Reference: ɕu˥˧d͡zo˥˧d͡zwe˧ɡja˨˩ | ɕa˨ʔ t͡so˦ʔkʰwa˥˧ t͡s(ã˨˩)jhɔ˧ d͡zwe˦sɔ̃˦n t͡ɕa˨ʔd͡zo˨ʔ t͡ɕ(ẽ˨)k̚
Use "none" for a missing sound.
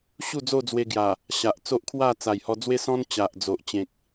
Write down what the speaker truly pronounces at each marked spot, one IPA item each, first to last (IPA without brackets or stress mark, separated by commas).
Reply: a˨˩, ẽ˨